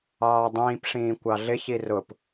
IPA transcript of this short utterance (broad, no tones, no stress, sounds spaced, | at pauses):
ɑː dˤ ĩː p ʂ ĩː kʷ ɑ ɮ ɪ ç i r ʊ p